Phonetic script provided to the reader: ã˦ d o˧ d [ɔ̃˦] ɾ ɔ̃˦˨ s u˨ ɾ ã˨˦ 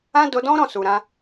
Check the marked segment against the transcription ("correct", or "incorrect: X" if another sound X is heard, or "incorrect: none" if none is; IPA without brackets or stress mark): correct